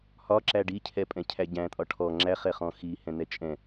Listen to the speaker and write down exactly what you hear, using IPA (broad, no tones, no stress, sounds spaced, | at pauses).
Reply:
h ɒ ǁ æ ɖ i cʰ ɛ pʼ ɛ̃ cʰ æ ɟ æ̃ tʼ ɒ ʈʰ ɔ ŋ͡ǁ æ χ ɛ χ ɔ̃ x i h ɛ̃ n ɛ t͡ʃʼ ɛ̃